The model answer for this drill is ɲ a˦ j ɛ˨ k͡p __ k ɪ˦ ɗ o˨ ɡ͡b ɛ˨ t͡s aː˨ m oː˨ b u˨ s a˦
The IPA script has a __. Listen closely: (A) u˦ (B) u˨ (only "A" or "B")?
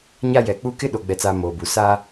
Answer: A